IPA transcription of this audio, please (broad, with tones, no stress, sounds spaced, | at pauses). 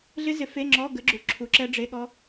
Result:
ɮ ɪ˦˥ z ɪ˨˥ f e˧˥˧ ŋ͡ǁ ɔ˧˥˧ ɡ ə˨˥ ɡ͡ǁ u˨ ǁʰ u˨˥ ǁ ɛ˦˥ ɖ͡ʐ e˧˥˧ ɠ ɔ˦˥